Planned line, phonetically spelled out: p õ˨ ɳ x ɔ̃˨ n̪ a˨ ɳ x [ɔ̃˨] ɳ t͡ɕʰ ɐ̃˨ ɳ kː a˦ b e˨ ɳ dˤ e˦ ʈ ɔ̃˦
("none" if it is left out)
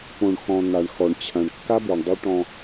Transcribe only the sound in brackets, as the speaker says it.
ɔ˨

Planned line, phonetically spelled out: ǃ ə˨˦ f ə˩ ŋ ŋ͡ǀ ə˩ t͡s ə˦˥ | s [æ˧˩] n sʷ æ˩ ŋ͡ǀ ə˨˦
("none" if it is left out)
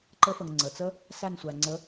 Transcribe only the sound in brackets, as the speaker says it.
æ˧˩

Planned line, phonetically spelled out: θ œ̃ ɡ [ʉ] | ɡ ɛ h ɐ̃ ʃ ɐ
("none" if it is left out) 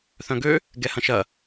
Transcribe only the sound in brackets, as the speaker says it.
ø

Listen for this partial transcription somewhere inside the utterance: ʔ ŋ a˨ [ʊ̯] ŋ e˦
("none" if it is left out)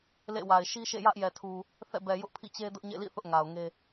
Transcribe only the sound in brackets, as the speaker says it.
ʊ̯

